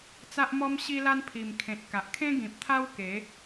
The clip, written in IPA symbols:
t͡s a˦ ʔ m ɔ˦ m ɕ i˦ l a˦ n pʰ i˨˩ m kʰ ẽ˨ t̚ k a˨ ʔ kʰ ẽ˦ ɡ ĩ˨ p̚ t̪ʰ a˦ w k e˨˦

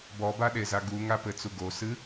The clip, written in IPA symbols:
b ɔ b a ɗ e z a ɡ u ŋ a p ɘ t͡s u ɡ o s ɨ

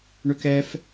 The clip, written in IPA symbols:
ɳ ø k ɛ f

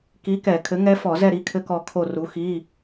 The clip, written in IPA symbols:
k i˨˥ k ɛ˧˩˧ kʰ ɘ˨˥ ŋ ɛ˦˥ f ɔ˧˩˧ z ɛ˦˨ ɾ i˨˥ kʰ ɘ˦˥ k ɔ˦˨ kʰ o˦˨ r u˨˥ x i˧˥˧

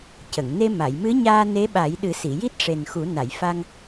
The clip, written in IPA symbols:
c ə˨˩˨ ŋ n e˧ m a˨˩˨ j m ɨ˧˥ ɲ aː˧ n e˧˥ ɓ a˨˩˦ j ɗ ɨ˨˩˦ s i˨˩˨ j i˦˥ t̚ ʂ e˨˩ n x u˨˩˦ n a˨˩˨ j f a˧ ŋ

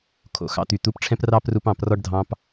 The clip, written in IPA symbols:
kʰ o̰˨ x ɑ̰˧ t̪ y˨ t̪ u˨˦ p ʈ͡ʂʰ ɛ̃˧ p r ɑ˧ p r u˧ p ɑ̃˦˨ p r ɔ˦ ɖ dʱ ɑ̃˦ p

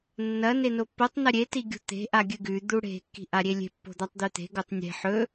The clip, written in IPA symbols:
nː ɐ n e n o pː o tˤ n ɐ ɾʲ e t i ɡʲ ṳ t̪ e̤ ʔ a ɡʲ ɨ ɡ ʉ d̪ u ɽ e̤ kː i̤ ʔ a ɾʲ e lʲ e̤ pː o̤ d̪ a tˤ d̪ ʉ t̪ e̤ ɡ o tˤ nʲ e̤ ħ ɵ

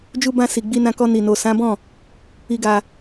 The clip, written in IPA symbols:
d͡ʒ u˧ b ã˧ s i˨ ɡ͡b i˧ n ã˧ k ɔ˧ n i˨ n o˨ s ã˨˦ b ɔ̃˦˨ | i˧ ɡ a˧

